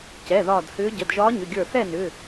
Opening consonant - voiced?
no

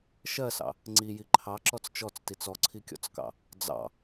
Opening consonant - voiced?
no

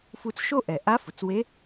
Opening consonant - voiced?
no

